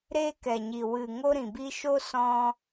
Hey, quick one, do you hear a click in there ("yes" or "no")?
no